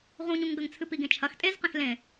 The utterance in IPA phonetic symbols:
ʁũɲũŋɡɐŋt͡sʰɨ piɡẽt͡ʃʰɐx tʼezqẽx lẽ

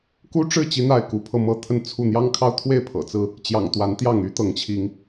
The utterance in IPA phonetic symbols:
ku˦ʈ͡ʂɻ̩˥˨ t͡ɕi˦n̪a˥˨ɪ̯ ku˨˦pʰɤ˧mɤ˦t̪ʰə˥˨n t͡sʰu˥˨ n̪jɑ˦ŋkʰɑ˦ʊ̯t̪ʰwe˥˨ɪ̯ pʰɤ̰˨˩t͡sɹ̩˥˨ | t͡ɕjɑ̰˨˩ŋt̪wa˨˦n t̪jɑ˥˨ŋ y˦t̪ɤ˨˦ŋt͡ɕʰi˨˦ŋ

